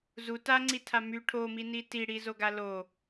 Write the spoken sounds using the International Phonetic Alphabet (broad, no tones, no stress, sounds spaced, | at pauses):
z u t a ŋ͡ǀ i tʰ a m y ʈʰ o m i n i t i ɽ i z o ɡ a l o